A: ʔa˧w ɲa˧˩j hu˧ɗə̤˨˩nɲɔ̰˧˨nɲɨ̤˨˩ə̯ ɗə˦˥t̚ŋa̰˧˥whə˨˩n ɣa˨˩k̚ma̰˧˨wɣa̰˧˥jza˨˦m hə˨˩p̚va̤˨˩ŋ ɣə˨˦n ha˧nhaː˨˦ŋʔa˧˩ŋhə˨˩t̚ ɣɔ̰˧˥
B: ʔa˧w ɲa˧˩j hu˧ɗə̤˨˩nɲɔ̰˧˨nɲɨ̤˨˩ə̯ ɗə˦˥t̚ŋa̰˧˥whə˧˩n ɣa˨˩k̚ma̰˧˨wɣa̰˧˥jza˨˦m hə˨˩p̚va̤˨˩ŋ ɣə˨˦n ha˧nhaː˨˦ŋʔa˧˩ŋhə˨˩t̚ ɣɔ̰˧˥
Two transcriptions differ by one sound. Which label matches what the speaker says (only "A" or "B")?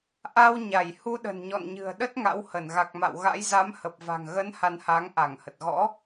B